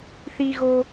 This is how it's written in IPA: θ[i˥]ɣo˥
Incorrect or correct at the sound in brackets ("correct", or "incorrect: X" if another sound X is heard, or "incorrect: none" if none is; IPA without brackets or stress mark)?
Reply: correct